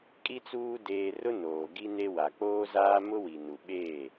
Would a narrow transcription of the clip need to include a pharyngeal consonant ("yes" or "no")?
no